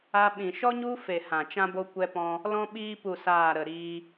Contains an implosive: yes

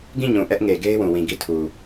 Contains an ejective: no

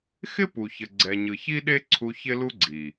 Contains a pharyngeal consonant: no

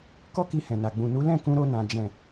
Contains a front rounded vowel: no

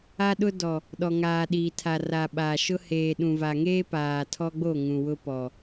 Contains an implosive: yes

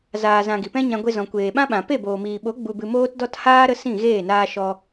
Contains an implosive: yes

